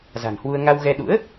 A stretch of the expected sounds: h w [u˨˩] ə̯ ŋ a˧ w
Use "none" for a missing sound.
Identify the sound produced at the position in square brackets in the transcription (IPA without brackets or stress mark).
u˧